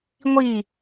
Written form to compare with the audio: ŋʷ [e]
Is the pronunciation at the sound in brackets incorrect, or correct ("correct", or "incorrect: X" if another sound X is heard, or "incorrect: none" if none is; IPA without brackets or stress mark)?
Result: incorrect: i